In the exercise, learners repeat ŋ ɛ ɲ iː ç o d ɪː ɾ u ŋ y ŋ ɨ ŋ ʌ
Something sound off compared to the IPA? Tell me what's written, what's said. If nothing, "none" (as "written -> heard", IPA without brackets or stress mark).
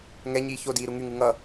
ɪː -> iː